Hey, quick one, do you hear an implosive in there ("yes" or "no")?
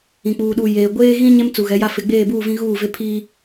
yes